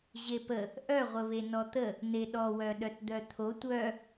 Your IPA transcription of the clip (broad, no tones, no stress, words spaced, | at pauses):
ʑepə | ʔœʁʷəβe nɔt̪ə | n̪eɗɔwœɗœt d̪œt̪ʰo tʷœ